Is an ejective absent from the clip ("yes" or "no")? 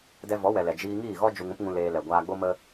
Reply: yes